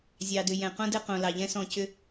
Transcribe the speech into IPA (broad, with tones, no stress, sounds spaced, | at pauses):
zʲ ɑ˨ d ʏ˨ j ɛ̃˨ q õ˦ d ɘ˦ q õ˨ l ɑ˨ ʎ ɛ̃˦ s ɔ̃˦˨ c ʏ˦